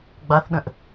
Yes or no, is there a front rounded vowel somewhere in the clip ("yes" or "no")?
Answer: no